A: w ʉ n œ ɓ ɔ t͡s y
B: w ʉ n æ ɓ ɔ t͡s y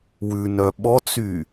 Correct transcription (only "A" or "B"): A